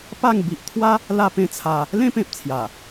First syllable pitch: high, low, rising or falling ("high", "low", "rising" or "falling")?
falling